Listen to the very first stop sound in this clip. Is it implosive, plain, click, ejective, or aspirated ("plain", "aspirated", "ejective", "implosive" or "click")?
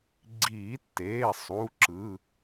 click